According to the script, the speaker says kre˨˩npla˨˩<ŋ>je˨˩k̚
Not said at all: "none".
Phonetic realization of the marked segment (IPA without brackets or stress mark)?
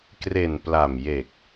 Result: m